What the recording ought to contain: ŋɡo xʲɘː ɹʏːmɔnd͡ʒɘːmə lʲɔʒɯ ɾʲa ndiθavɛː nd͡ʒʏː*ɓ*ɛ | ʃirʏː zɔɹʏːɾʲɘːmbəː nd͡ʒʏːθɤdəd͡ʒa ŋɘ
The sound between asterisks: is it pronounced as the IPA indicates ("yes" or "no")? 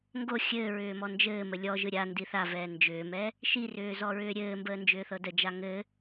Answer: no